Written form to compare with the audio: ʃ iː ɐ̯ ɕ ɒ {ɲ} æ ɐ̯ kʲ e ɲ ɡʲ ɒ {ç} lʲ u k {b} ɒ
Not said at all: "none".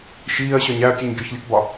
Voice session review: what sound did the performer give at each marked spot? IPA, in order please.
ɲ, ç, b

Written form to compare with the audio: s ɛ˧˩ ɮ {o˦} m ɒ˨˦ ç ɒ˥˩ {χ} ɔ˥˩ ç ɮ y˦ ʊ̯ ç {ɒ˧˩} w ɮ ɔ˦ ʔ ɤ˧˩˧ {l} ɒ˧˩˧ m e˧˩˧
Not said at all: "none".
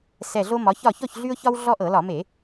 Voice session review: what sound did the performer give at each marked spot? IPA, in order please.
o˦, ç, ɒ˦, l

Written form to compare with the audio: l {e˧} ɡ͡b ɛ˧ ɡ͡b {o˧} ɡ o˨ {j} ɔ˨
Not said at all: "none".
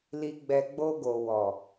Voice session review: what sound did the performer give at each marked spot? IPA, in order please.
i˧, o˧, w

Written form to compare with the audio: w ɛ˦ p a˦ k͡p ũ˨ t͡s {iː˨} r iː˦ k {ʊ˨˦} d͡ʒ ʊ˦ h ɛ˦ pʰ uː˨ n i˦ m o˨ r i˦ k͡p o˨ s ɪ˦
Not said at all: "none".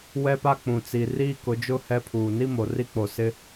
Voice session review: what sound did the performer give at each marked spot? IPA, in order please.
i˨, ʊ˨˦

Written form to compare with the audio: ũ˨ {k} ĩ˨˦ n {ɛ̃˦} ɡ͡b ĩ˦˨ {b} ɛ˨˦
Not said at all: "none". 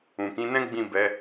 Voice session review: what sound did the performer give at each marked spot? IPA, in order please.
k, ɛ̃˦, b

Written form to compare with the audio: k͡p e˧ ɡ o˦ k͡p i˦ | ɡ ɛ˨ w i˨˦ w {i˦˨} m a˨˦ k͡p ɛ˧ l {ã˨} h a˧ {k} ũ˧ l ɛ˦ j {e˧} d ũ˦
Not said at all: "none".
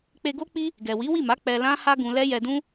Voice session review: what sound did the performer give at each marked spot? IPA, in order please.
i˦˨, ã˦, ɡ, ɛ˧

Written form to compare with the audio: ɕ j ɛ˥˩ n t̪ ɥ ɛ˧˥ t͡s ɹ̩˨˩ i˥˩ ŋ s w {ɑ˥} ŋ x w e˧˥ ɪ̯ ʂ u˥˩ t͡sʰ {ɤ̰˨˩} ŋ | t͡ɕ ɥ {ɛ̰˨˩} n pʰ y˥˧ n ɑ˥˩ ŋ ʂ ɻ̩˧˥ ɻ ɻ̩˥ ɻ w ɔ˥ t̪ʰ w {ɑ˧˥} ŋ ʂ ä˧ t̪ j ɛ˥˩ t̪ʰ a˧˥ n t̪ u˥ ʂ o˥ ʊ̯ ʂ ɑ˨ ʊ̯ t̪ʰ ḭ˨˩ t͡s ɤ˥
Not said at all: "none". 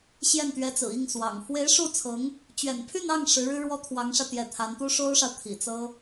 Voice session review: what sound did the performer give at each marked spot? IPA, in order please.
ɑ̰˨˩, ɤ˧˥, ɛ̰˨˩, ɑ˧˥

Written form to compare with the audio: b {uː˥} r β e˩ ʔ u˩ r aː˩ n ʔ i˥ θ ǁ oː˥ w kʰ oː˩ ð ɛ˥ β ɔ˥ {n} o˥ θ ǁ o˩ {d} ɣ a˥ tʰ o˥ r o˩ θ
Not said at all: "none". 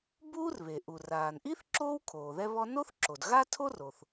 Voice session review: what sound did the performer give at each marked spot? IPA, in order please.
uː˥, n, d

